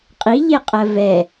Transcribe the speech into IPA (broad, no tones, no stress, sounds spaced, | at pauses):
qʼ i ʎ e qʼ ɜ v ɛ